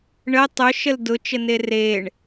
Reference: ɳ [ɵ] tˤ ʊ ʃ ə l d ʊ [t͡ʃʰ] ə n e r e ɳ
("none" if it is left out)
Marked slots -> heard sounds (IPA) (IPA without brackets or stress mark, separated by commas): ə, t͡ʃ